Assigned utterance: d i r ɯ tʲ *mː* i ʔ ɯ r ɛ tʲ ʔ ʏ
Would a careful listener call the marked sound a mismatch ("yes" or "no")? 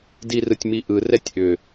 yes